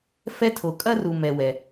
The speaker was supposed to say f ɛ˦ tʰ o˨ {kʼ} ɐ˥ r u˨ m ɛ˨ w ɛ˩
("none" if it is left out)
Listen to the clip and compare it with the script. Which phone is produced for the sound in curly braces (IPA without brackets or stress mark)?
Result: kʼ